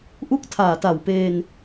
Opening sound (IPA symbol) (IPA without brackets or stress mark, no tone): ʔ